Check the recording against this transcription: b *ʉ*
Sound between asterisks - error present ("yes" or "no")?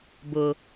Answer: yes